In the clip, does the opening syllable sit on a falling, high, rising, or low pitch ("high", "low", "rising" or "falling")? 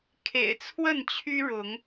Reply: low